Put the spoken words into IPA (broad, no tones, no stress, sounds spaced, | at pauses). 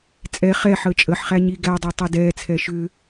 t͡sʼ ɛ χ ɛ ħ əː t͡ʃʼ ə ħ χ æ ɲ i ɡ æ dˤ ɛ tˤ i d ɛː t͡sʰ ɛ ʃ ʏ